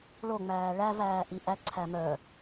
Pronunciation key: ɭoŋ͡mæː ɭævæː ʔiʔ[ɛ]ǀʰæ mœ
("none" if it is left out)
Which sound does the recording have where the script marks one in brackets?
æ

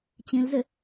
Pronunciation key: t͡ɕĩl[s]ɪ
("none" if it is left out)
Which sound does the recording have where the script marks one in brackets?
z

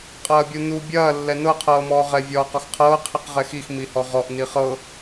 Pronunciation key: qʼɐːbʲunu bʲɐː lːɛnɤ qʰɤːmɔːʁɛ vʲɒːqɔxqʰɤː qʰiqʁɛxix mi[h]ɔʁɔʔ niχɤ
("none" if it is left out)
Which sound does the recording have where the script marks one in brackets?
h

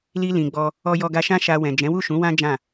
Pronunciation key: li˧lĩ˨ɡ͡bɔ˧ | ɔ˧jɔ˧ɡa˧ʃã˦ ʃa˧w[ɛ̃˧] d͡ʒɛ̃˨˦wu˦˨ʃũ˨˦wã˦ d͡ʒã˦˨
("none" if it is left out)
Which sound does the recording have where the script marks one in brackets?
ɛ̃˨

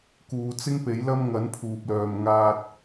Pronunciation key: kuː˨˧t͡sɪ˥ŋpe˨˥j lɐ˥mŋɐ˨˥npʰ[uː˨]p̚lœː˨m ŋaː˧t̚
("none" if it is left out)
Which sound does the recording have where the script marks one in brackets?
uː˨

